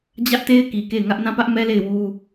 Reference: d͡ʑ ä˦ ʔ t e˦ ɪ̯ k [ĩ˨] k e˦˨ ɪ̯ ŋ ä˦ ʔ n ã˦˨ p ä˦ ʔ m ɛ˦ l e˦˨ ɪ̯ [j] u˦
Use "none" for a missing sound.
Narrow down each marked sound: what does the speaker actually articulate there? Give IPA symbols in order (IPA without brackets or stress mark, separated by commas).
i˨, w